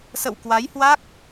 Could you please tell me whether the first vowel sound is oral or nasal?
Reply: oral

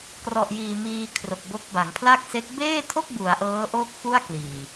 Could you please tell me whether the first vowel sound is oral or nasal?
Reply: oral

